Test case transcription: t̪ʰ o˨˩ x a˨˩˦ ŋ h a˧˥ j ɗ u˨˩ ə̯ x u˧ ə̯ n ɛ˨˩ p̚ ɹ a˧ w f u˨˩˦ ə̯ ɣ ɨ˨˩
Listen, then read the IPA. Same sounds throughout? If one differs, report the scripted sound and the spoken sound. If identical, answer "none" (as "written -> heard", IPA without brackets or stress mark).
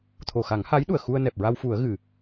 none